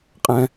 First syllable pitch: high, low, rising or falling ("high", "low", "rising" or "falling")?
high